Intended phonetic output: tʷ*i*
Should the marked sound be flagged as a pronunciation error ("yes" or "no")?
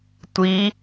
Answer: no